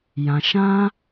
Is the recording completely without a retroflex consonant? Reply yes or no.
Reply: yes